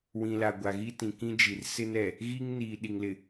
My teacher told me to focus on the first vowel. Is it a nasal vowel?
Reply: yes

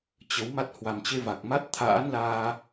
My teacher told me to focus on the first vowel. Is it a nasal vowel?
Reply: no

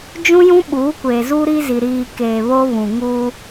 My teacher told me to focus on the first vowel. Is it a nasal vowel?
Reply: yes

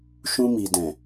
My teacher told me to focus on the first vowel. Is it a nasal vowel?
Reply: yes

